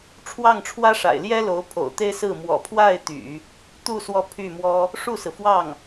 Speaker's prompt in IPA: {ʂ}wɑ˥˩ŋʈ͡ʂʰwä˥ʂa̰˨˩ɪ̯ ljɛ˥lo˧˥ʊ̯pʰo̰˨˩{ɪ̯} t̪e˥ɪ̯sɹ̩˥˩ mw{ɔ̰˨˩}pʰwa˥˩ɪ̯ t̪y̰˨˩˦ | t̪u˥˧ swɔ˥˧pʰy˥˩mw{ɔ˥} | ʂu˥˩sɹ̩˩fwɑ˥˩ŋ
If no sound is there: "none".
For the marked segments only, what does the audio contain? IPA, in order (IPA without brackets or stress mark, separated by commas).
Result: ʈ͡ʂʰ, ʊ̯, ɔ̰˨˩, ɔ˥